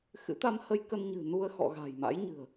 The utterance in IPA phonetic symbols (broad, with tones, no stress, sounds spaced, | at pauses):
x ɨ̰˧˥ t̪ a˧ m h ə˧ j k ə˧ n ɲ ɨ̤˨˩ n u˧ ə̯ x ɔ̰˧˨ ɣ a̤˨˩ j m a̰˧˥ j ɲ ɨ̤˨˩ ə̯